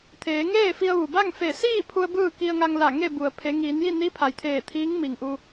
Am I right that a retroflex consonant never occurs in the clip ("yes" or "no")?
yes